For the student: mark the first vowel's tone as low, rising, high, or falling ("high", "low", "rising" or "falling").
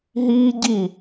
high